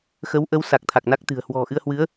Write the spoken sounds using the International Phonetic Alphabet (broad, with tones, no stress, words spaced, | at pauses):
xə˨˦wʔə˨˦w sa˨˩k̚t̪ʰa˨˩k̚na˦˥k̚t̪ɨ̤˨˩ə̯ hwɔ̤˨˩ ʔɨ˧ə̯hwɨ˨˦ə̯